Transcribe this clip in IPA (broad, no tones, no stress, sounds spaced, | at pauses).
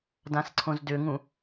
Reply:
d ã s ǀʰ õ z d ʏ ŋ ũ